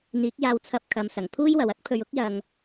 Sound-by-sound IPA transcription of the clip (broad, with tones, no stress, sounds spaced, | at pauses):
n̪ iː˨˥ k̚ j aː˧ w t͡sʰ ɐ˧ p̚ kʰ ɐ˨˧ m s ɐ˨˩ ŋ pʰ uː˥ j w ɐ˨ w ɐ˥ t̚ pʰ ɵ˧ ɥ ʊ˥ k̚ j ɐ˧ ŋ